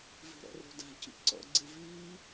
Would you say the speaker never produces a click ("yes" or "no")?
no